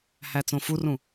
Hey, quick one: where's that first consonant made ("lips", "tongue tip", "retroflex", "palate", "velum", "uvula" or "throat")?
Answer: throat